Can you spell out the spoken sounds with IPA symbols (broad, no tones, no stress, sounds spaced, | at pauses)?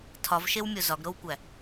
tʰ ɒ v ʃ e w mʲ o z ɒ ɡ ɾ o w kʷ æ